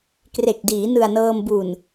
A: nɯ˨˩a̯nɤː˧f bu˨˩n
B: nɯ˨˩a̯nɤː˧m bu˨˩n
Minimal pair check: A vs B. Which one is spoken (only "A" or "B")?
B